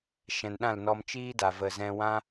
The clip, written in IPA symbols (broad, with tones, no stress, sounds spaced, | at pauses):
ʃ ɛ̃˨ n ɗ ã˦˨ l n ɔ˧ m t͡ʃ iː˧ d a˨ v ə˨ z ɛ̃˧ w ã˧